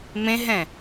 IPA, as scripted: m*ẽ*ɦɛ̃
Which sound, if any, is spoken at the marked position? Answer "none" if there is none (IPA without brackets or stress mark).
ẽ